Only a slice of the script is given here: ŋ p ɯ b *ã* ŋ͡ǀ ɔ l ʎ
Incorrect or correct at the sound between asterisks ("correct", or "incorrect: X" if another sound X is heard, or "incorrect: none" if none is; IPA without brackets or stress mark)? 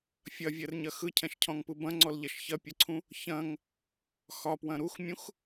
incorrect: ɐ̃